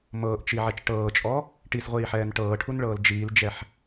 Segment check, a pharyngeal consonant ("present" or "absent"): present